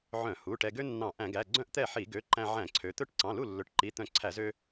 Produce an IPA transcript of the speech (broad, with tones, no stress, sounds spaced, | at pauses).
ʕ œ̃˧˩˧ h u˩˧˩ ʈ ɛ˧ ɡ ø˥ nː ɑ̃˧˩˧ ʔ æ̃˧˩˧ ɡ æ˩˧˩ ɡ͡ǀ œ̃˥ ʔ t̪ ɛ˥˩ ħ i˧˩˧ ɡ ø˩˧˩ ǃ æ̃˧ ʕ æ̃˧˩˧ ǀʰ ø˩˧ t̪ ɵ˥˩ ʈ ǀ ɑ̃˩˧˩ l u˥˩ lː ɵ˩˧˩ ʈ ǃ i˩˧˩ t̪ œ̃˧˩˧ ǀʰ æ˧˩˧ z ø˧